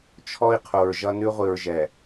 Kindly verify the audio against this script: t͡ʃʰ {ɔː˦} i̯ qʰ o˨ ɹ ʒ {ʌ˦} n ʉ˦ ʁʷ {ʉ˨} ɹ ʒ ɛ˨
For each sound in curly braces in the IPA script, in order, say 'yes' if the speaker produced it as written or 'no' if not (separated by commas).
no, yes, no